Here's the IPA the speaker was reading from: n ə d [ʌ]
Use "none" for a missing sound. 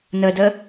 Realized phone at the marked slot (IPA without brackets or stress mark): ə